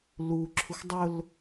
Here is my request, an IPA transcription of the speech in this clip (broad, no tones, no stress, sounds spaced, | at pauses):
l u ǁʰ u x dˤ ʊ l